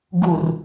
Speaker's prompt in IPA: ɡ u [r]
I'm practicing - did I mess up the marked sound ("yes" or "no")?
no